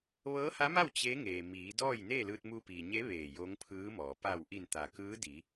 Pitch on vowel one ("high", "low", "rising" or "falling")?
rising